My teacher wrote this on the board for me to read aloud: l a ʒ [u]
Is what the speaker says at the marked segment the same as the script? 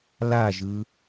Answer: no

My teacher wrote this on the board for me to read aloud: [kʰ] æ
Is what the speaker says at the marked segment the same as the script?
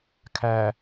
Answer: yes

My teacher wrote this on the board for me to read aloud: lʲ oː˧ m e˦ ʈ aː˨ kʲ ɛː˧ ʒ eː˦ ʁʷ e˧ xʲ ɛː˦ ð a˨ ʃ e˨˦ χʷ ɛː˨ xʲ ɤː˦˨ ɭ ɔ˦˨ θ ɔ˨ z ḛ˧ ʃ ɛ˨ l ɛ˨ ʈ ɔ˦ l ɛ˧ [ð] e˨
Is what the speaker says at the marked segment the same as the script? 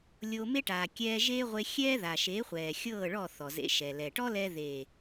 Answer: yes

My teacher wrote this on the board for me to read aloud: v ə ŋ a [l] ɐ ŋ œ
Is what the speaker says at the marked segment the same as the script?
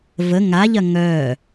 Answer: no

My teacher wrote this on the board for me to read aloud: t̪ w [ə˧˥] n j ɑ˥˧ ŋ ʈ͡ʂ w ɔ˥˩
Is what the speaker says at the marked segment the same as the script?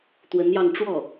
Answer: yes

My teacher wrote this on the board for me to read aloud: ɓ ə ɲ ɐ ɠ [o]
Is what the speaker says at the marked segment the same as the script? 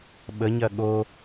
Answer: yes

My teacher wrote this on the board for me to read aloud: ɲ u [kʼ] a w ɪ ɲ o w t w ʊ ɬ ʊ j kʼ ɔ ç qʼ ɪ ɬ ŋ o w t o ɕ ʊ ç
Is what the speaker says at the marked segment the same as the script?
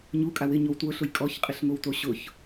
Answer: yes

